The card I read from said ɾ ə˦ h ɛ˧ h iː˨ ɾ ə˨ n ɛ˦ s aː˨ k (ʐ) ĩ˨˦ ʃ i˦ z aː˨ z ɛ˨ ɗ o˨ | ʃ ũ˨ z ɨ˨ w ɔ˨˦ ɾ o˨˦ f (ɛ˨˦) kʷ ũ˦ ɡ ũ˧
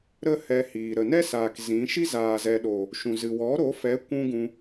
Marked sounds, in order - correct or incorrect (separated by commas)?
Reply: incorrect, correct